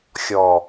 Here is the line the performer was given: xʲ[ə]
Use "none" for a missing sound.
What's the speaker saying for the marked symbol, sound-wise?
ɔ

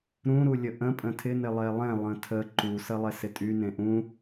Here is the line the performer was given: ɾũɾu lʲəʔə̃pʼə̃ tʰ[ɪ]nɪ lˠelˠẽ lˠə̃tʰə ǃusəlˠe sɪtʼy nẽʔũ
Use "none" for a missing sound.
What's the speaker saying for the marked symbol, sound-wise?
ɪ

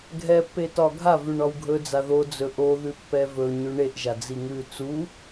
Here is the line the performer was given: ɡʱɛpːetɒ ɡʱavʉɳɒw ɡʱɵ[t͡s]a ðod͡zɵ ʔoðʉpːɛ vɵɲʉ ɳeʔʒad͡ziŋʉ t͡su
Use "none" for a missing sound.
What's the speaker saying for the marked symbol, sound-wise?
d͡z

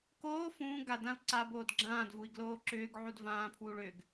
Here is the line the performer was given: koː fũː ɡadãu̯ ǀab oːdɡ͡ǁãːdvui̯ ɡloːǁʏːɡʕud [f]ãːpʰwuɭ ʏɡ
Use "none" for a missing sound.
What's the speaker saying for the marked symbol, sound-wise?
v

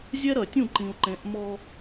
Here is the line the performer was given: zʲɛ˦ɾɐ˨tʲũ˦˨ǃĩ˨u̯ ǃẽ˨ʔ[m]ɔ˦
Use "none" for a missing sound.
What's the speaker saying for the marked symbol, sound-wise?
m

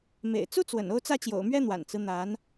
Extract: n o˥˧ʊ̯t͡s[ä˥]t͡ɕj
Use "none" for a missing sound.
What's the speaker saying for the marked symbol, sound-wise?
ä˥˩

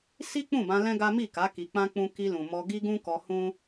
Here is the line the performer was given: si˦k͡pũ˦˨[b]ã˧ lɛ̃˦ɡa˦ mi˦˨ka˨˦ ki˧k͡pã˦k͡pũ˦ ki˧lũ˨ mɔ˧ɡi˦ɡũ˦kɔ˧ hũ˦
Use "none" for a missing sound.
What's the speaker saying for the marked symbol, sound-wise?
b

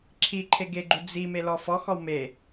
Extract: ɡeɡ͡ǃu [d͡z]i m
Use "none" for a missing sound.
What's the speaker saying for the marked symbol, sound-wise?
d͡z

